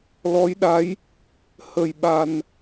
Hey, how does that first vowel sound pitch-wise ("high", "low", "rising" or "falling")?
rising